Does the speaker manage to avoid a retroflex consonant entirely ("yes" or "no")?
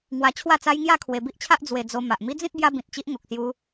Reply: yes